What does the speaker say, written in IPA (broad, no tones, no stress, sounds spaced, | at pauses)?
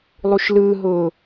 lˠ u ʃ l ɯː ɦ ʊː